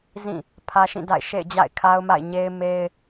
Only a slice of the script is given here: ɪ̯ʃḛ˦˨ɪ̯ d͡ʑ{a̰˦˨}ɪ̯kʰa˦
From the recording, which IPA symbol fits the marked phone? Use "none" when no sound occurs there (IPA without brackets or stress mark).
a̰˦˨